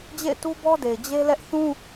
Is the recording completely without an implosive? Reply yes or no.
yes